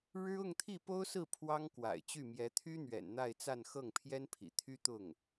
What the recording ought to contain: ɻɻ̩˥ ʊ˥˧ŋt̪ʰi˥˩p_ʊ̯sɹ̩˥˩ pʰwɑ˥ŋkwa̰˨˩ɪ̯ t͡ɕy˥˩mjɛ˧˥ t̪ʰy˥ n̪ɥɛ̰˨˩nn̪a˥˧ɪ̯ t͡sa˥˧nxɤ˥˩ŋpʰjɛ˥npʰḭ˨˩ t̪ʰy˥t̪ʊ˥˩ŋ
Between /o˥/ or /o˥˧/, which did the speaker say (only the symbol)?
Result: o˥